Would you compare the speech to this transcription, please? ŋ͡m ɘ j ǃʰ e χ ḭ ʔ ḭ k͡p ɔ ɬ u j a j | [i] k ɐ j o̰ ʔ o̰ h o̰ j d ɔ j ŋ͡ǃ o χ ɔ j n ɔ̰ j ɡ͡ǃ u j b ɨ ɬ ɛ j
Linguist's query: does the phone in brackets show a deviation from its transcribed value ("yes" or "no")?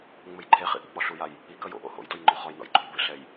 no